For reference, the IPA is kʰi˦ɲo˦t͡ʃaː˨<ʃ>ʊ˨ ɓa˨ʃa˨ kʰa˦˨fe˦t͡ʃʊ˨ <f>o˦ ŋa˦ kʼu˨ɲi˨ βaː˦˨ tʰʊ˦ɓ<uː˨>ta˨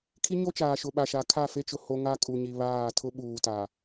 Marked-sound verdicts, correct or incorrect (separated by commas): correct, incorrect, correct